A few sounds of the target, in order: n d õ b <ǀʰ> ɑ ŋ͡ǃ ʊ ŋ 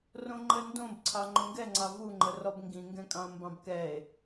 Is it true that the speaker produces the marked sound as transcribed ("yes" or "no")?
yes